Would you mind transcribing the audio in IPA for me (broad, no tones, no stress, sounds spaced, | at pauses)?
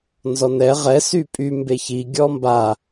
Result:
n z ɔ n ɛ ʁ ɛ s y pʼ y m b e ç i ɡʲ ɔ m b a